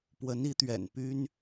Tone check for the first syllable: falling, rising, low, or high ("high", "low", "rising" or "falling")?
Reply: rising